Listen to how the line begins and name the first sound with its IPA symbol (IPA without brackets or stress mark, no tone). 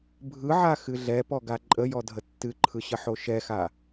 bʱ